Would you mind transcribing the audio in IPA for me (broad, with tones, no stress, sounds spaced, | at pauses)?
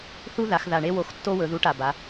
θ u˦˥ ð a˩˧ x ð a˨˩ ɳ e˦˥ w o˨˥ x tː o˦˥ w ɵ˩˧ ð u˨˥ ʈ a˨˩ b a˩˧